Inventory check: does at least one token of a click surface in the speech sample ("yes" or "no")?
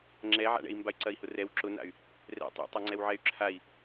yes